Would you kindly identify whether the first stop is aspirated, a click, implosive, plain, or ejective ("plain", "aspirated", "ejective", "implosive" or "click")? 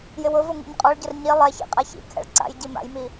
ejective